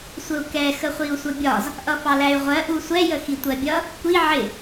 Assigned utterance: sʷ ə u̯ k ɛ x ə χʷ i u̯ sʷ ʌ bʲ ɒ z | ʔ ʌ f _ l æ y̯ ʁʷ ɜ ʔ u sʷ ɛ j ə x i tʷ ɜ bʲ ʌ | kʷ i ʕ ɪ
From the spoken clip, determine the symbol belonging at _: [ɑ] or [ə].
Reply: ɑ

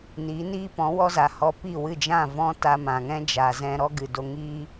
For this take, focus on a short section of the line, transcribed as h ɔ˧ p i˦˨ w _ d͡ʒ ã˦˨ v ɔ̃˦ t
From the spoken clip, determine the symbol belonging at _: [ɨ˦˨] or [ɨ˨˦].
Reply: ɨ˦˨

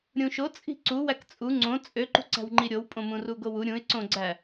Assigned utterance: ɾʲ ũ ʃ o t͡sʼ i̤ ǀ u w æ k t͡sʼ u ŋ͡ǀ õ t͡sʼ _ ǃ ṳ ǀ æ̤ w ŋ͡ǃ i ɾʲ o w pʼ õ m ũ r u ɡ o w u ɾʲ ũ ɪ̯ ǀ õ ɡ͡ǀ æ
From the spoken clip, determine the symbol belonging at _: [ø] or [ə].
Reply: ø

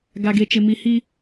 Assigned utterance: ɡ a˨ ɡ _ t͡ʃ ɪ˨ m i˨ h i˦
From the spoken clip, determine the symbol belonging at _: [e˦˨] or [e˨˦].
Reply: e˨˦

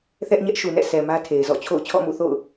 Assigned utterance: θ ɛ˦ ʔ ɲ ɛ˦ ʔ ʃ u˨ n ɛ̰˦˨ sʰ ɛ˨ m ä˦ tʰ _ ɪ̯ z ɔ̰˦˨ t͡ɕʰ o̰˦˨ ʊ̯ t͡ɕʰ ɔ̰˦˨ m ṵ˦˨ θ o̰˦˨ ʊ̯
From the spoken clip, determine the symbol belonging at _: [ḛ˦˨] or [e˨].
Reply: e˨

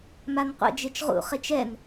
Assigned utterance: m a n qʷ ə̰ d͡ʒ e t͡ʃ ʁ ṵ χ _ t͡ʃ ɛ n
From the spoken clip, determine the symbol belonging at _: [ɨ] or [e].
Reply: e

